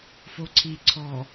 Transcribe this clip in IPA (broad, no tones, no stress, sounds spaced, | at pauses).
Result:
f o ǀʰ i ǀʰ ɔ